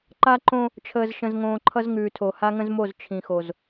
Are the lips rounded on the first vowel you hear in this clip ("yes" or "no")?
no